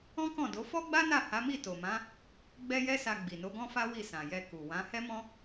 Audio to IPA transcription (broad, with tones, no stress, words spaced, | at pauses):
ɔ̃˦kɔ̃˦˨do˨˦ fɔ˦ɡ͡ba˦na˦˨ ha˨˦mi˦˨to˨mã˨˦ | ɡ͡bɛ˦jɛ˦sa˧ ɡ͡bi˨no˨˦ɡɔ̃˦fa˦ wi˦˨sã˨jɛ˧ ku˨wã˨˦ hɛ˦mɔ̃˦